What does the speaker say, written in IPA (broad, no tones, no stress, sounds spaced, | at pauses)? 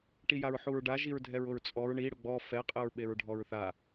ʈ i j a ɹ ħ u ɹ ɖ a ʒ i ɹ dʱ ɛ ɹ ʊ ɹ t͡sʼ ɔ ɹ ɳ i ɽ ʊ ɡ͡b ɔ f ɛ qʼ ɘ ɹ ɓ e ɹ ɖʱ ɔ ɹ θ a